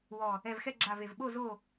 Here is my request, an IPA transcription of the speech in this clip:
wɔ˧˩ | ɛ˧˩vxɛ˥˨ɡ͡ǁa˧˩v e˧˩vɓo˥˨ zo˥˨

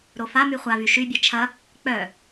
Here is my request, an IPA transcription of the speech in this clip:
ɾofamy χʷa vyʃybʲe t͡ʃʰɐ | k͡pœ

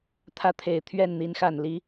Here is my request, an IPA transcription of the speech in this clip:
t̪ʰä˥˩t̪ʰe˨˩ɪ̯t̪ʰɥɛ˥˩n n̪i˧˥nxa˨˩nli˧˥

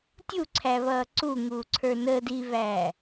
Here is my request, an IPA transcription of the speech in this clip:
tʲuǀʰæβʌː ǀuŋuːǀʰə˞ nəːd iβæː

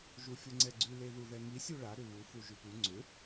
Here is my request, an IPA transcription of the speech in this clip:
ʒufʲʊŋ͡ǀɛɡ͡ǀʉ leðuðɛŋi sʲuɭa ɾʏβu fuʒʉpʉ ŋ͡ǀʏ

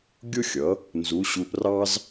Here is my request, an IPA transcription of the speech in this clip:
ɡʲʊ˥xʲʌ˩˥ | nzu˩˥ɕu˧ʔrɑ˥z

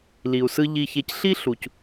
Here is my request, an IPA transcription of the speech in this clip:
li˨u̯sɯ˧ ʎi˨çe˨cɬi˧ ɬu˨c

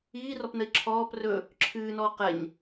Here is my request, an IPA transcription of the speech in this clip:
iːrɔpnəi̯ ǁʰɔːp rɵ | ǁʰɨːnɔː qɛɲ

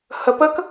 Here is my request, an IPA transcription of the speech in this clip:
həp ək

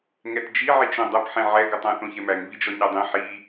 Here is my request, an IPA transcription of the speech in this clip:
ŋɛtd͡ʒi ʕit͡ʃõdˤɐp ħẽʕɛ ɡɐtˤã θõçɛmæŋ vid͡ʒɔɲadˤẽ ħi

